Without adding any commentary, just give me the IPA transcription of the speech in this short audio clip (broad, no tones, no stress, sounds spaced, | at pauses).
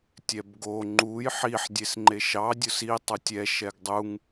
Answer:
tʲ ɛ b ɡ o ŋ͡ǃ u j ħ i ħ dʲ e s ŋ͡ǃ e ʃ ɑ dʲ ʊ s i tˤ u tʲ ɛ ʃ ɛ ɡ dˤ u ŋ